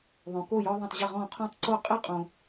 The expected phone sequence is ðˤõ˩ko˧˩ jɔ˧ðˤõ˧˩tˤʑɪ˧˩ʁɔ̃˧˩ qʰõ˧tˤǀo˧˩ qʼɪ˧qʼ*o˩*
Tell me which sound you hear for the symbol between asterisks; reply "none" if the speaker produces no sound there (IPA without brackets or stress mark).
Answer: õ˩